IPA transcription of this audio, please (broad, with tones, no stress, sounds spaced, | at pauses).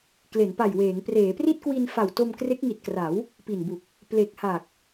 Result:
k l e˩˦ n p a˨˩ j w eː˩˦ ŋ p r eː˩˦ p r i˥˩ t̚ k w i˧ n f a˨˩ w t o˧ m k r e˦˥ k̚ ŋ i˨˩ t̚ k r a˩˦ w | p i˨˩ n b u˨˩ k̚ | p l e˨˩ k̚ h a˨˩ k̚